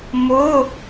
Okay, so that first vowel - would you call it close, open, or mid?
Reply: mid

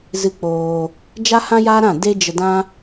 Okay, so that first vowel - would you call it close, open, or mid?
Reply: close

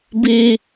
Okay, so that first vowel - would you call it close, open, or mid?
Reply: close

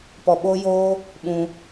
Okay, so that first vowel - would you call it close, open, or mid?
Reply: mid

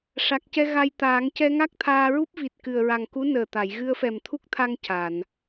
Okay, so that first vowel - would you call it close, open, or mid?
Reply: open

